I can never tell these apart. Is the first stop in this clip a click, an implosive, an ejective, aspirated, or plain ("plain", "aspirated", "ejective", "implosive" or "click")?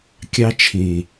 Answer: plain